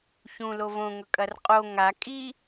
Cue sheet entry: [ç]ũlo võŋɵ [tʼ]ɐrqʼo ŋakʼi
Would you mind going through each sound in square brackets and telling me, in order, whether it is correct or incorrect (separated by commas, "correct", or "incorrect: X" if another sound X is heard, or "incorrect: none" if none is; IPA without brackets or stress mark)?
correct, incorrect: kʼ